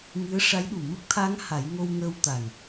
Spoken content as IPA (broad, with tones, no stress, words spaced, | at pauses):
ŋɨ˧˥ə̯ʂa˧˥jɗu˨˩ mə˦˥k̚t̪ʰa˧˥ŋ ha˨˩˦jŋo˧wŋəː˧w t̪a˨˩ŋ